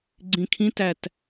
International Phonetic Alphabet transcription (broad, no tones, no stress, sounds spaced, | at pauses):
ɡ͡ǀ ĩ kʰ ĩ t æ t